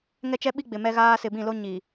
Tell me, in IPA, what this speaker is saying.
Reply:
ŋ ɛ˦ t͡ʃ ɛ˦ ɓ i˦ ɡ͡b ɪ˨ m ɛ˦ ɣ aː˦ s ɪ˨ b ĩ˦˨ l o˦ ɲ i˨

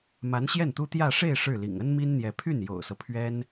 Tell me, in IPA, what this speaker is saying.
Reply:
m a˧˥ n ɕ j ɛ˥˩ n t̪ u˥ t̪ j ä˥˧ ʂ e˥˧ ɪ̯ ʂ ɻ̩˥˩ l ḭ˨˩ ŋ ə˥ n m i˥ n n̪ j ɛ˧˥ pʰ y˥˩ n j o̰˨˩ ʊ̯ s ɤ˦ pʰ ɥ ɛ˥ n

